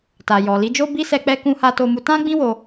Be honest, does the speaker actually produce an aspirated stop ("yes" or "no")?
no